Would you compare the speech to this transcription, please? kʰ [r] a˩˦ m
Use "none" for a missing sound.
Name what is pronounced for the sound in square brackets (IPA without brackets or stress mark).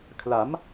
l